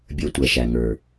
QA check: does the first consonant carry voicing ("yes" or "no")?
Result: yes